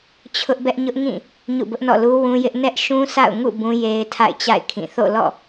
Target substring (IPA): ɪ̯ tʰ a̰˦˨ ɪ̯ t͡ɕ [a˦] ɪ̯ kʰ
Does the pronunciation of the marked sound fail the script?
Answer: yes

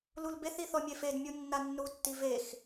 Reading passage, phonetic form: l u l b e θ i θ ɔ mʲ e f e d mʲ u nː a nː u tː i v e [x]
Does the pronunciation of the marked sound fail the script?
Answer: no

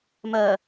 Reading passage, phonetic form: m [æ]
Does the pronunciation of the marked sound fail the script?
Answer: yes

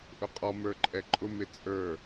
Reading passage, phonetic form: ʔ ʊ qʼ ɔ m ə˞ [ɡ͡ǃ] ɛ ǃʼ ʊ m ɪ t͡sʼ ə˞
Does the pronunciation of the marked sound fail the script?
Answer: yes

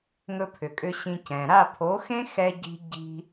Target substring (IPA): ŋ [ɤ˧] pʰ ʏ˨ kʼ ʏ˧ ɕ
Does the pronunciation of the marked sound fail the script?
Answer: yes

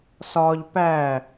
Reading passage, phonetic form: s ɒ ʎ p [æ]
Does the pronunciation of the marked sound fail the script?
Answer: no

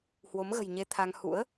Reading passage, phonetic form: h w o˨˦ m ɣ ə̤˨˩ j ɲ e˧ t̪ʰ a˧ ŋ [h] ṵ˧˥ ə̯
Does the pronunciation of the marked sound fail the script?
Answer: no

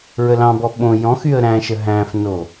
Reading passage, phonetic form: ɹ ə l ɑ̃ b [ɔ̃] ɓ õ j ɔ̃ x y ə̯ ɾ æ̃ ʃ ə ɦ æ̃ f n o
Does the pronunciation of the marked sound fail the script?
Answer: yes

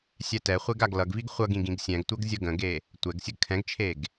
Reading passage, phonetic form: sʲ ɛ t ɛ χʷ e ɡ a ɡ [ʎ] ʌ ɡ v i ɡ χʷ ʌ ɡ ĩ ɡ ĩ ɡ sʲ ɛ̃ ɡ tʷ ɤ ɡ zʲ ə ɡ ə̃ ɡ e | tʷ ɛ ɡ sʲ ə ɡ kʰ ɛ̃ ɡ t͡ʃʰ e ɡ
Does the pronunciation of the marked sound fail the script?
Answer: yes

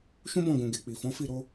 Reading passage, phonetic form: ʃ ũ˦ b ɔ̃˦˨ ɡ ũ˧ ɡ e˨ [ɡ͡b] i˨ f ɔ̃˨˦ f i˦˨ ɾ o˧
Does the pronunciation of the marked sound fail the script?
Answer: yes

